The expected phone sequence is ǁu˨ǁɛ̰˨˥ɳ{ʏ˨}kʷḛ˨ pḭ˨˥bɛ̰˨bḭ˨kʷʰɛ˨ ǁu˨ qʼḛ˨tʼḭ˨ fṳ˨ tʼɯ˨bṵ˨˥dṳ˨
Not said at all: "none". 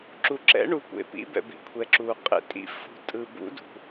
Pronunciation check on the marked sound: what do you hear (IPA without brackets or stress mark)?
u˨